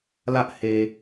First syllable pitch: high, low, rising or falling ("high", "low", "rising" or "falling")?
high